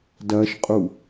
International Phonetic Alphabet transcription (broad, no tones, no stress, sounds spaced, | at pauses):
d ɐ ʃ qʼ u